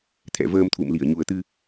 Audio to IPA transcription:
t̪ʰ ɛ̰˧˨ v əː˧ m t̪ʰ ṵ˧˨ m l i˧˩ ə̯ ɲ u˨˩ ə̯ t̪ ɨ˧

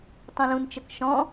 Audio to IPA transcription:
tˤ ũ l ũ n t͡ʃ ə k ʃ ɔ̃

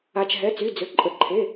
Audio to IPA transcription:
a˩ t͡ʃ ɦ ɛ˩˧˩ t͡s y˩˧˩ d͡z ø˩ ǃʼ ə˩ ǃʰ e˩˧˩

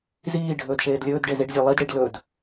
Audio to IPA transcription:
z iː ɖʱ ɵː d ʃ eː d lʲ ɵː d ɖ e z i ɖ zʲ æ lˠ i d ɽ i ɖ l ɵ d

